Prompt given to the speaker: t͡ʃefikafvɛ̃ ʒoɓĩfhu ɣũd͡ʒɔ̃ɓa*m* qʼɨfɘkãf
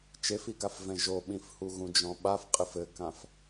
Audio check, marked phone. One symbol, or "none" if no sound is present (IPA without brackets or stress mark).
f